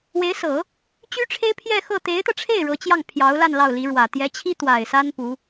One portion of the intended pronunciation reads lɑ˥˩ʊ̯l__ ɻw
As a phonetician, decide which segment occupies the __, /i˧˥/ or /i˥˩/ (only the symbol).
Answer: i˧˥